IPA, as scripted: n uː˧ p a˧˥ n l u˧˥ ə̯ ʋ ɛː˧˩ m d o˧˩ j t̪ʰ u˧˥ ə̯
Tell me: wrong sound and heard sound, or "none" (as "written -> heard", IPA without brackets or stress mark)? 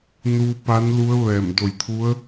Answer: none